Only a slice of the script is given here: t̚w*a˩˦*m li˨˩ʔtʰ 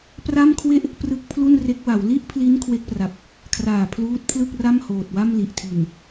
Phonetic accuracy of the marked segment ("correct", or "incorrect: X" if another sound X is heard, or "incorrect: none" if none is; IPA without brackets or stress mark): incorrect: a˥˩